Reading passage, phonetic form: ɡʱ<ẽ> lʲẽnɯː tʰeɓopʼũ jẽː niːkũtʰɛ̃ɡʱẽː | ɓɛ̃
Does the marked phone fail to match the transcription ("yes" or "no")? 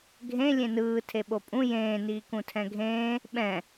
no